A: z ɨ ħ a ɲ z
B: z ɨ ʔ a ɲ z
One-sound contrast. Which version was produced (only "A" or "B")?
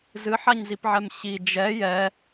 A